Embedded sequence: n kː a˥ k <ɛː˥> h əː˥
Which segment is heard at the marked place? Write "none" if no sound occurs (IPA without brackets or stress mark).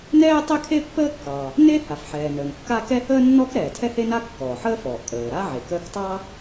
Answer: ɛ˥